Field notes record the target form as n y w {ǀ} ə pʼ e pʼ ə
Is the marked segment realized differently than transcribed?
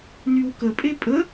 yes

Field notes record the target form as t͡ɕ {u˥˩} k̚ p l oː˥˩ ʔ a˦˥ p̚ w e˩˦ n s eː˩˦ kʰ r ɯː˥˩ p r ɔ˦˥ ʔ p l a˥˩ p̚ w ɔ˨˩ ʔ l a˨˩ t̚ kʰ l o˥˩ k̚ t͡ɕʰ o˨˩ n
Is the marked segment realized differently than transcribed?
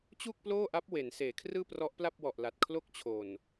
no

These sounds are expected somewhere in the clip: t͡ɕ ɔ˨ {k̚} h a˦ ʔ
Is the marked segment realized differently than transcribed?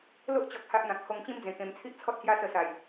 no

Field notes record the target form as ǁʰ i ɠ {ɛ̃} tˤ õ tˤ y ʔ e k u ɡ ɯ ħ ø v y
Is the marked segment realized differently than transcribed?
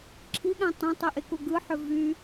yes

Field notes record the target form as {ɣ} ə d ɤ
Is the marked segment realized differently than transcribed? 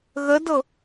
no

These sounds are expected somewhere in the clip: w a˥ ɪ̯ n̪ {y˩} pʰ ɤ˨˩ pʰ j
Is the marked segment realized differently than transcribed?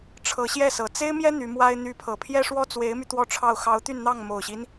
yes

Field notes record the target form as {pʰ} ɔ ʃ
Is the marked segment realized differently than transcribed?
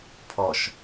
no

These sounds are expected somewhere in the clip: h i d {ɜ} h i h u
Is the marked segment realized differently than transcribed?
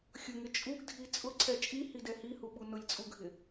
yes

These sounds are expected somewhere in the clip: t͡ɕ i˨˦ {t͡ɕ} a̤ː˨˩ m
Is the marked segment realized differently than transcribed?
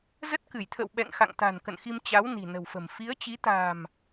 yes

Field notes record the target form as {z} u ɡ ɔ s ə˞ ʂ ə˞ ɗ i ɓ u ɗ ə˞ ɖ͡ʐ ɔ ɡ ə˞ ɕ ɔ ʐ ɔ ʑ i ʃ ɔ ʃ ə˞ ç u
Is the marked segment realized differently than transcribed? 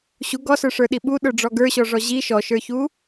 yes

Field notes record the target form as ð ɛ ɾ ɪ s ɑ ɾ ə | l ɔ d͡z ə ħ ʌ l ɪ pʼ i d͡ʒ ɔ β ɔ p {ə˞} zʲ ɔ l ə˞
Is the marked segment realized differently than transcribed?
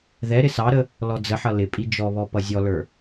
yes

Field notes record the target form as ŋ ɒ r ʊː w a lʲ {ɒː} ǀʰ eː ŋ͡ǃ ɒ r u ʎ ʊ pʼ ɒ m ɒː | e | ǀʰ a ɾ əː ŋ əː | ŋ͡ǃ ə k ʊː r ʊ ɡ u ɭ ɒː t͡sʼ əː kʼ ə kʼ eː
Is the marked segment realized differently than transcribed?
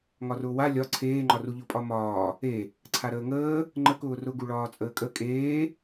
yes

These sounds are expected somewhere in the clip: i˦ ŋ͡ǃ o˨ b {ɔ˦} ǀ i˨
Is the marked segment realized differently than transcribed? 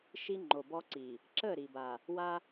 no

